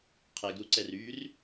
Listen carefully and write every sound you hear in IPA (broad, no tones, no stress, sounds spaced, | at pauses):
qʰ ɛ ɡ ɾ u ǀ ɛ r yː r